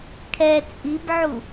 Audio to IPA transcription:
kʰ ɛ t͡sʼ i b ʕ u

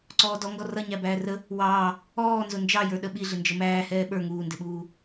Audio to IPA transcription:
ǀ ɔː d ɔ ŋ ɡ ɔ r ʌ ɲ æ b æː r ə | w ɑː | ɔː n z ʊ n d͡ʒ ɑ j ə˞ ɗ ə ɓ i ɮ ɪ n d͡ʒ ə m æː h ɛː ɓ ə˞ ŋ uː n d ɪ ɓ uː

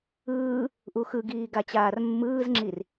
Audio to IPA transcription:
ɯː | ʔ u x ɯ ɡ iː ɡ a t͡ɕ aː r mː ɯː z ŋ͡ǁ i r

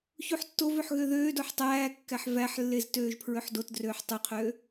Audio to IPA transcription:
ç u ħ tː o v ø ħ ɣ ø ð øː d o ħ tˤ æː kː æ ħ v æ ħ lː e z t øː ʒ pʰ ɹ ø ħ d o t d r øː ħ tˤ ø qʰ øː

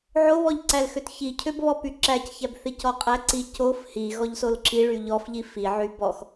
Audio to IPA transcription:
ʕ o β ɔ ʎ ǀ æ l x ø t ç i cʰ ø b β ɔ p y ǁ æ c ç æ b θ i c ɔ qʼ æ ǀ i c o f h i ɣ ɔ ʎ s o l ǁ i ɭ y ʎ ɔ f ʎ i f i ʕ y b ɔ x

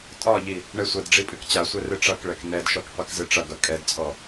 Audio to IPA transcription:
tʼ ɒ ʎ i | ɳ ɛ sʷ ɐ d ɖ͡ʐ i pʼ ɨ k t͡ɕ a sʷ ɛ r ɨ ʈ͡ʂ ʌ k ɭ ɛ k n ɛ d ʃ ɔ k qʷ i k z ɨ ʈ͡ʂ ʌ ɡ ʌ kʼ ɛ d t͡sʼ ɔ

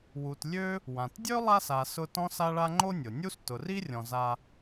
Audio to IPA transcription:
w u˨ t lʲ ø˥ | w ã˩ t dʲ ø˥ lˠ a˦ s a˨ s ʊ˦ t ɔ̃˥ s a˥ ɭ a˥ ŋ͡ǃ o˦ nʲ ʊ˩ nʲ u˦ s t ʊ˨ r i˥ rʲ ɔ̃˨ z a˦

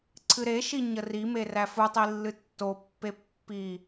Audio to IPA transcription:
ǀʰ ɨ ɾ e ʃ i ɲ ə r i m e r æ f u tˤ i lː ɨ tː o pː e pː i

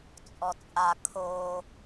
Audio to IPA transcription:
t͡sʼ ɔ t͡sʼ a kʰ o

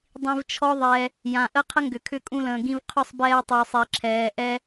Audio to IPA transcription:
dˤ ĩ˧ v t͡ʃʰ ɔ˦ ðˤ ɛ˧ | j ã˨ ʔ ə˦ qʰ ə˦ ŋ ɡ ʏ˨ kʰ ʏ˦˨ kʼ ũ˧ l ə̃ː˨ ɡ ĩ˧ v qʰ ʏ˦˨ sˤ b ɛː˧ tˤ yː˨ sˤ e˨ ǁʰ ɛː˨ ʔ ɛ˧

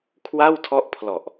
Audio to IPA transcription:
kʰ w a˥˩ w tʰ ɔ˦˥ ʔ pʰ l ɔ˨˩ ʔ

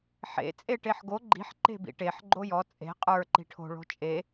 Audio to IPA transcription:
ħ ḛ t͡sʼ e ʈ e ħ ɡ o ɡ͡ǃ i̤ ħ ǃ e̤ b ḭ ʈ e ħ ɡ͡ǃ o j ɔ t͡sʼ e̤ qʼ ə˞ ǃ i̤ ʈʰ o̤ ɭ o̤ t͡ʃʼ e

